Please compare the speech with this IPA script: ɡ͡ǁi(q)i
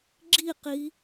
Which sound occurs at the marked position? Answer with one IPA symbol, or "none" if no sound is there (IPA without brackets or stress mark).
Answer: q